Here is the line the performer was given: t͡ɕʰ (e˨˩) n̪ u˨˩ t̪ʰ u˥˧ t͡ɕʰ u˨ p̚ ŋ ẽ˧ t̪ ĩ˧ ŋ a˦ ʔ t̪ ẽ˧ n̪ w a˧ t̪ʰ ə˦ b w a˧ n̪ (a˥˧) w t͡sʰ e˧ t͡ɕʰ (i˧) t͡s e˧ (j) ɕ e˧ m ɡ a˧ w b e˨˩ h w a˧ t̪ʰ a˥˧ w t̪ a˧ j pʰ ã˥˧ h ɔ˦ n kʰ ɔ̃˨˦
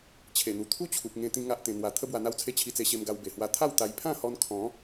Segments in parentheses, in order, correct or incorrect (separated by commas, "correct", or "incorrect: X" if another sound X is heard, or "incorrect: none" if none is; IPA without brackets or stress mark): correct, incorrect: a˧, correct, incorrect: none